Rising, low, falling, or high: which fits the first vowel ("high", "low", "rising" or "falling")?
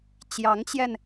rising